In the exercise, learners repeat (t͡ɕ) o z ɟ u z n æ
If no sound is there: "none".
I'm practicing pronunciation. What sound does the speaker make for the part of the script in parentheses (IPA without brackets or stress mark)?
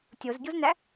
tʲ